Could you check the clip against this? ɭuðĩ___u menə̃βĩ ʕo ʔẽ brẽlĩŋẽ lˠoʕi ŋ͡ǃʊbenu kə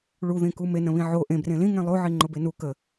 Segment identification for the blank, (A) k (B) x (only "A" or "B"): A